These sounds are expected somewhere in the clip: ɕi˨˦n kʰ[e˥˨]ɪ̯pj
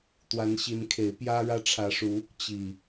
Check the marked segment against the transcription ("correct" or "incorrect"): incorrect